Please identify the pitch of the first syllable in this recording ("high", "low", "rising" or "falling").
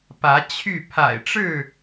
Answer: rising